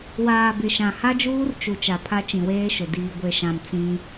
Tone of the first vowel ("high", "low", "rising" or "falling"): low